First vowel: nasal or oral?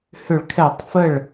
oral